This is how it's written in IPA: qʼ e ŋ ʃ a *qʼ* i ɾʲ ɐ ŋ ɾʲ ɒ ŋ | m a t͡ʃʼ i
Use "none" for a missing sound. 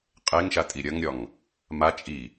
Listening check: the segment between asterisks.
tʼ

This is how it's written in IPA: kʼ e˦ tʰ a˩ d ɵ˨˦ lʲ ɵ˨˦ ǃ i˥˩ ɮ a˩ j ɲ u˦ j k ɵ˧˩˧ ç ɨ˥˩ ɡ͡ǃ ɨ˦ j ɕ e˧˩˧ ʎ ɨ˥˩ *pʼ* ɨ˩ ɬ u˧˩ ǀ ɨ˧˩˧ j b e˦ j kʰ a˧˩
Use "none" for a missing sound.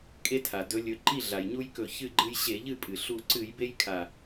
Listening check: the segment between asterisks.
pʼ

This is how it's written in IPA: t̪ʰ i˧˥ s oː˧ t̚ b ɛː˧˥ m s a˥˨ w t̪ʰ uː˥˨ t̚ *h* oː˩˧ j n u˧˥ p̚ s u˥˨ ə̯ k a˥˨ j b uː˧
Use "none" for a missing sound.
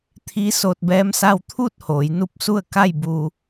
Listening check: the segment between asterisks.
h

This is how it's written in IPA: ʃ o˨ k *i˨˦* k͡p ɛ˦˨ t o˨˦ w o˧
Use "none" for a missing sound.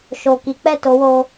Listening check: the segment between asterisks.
i˨˦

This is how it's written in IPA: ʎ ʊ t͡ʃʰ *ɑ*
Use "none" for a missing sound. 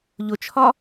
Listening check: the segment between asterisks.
ɒ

